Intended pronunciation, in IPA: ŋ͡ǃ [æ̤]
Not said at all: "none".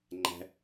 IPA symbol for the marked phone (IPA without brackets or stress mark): æ̤